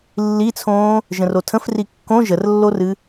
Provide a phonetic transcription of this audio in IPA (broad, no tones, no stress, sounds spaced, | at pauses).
lː i t͡sʰ õː | ʒ ə̃ r o tʰ ə̃ f r i kː õ ʒ ə r lː o r ɨ